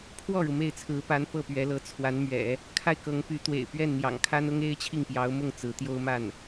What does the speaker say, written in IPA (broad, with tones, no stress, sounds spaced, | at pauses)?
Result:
pʰ w ɔ˥˩ ɻ u˩ m e˥˩ ɪ̯ t͡sʰ ɹ̩˧˥ p a˧˥ n p ɤ˥˩ p ɥ ɛ˧˥ l ɤ˧˥ t͡sʰ w a˧˥ n m ɥ ɛ̰˨˩˦ | kʰ a˥˩ ɪ̯ k ɤ˧˥ ŋ p y˧˥ t̪ w ḛ˨˩ ɪ̯ p ɥ ɛ˥˩ n n̪ j ɑ̰˨˩ ŋ kʰ a˥ n ʊ˥ ŋ e˥ ɪ̯ t͡ɕʰ i˥˩ ŋ p j ɑ˧˥ ʊ̯ m ʊ˥˩ ŋ t͡s ɹ̩˧˥ t̪ j o˥ ʊ̯ m a˥˩ n